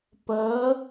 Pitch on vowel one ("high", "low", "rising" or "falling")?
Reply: rising